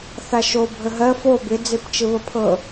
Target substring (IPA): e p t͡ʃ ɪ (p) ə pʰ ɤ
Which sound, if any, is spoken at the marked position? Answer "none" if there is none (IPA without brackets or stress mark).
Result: β